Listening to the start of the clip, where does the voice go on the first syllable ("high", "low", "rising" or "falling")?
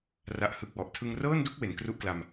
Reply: low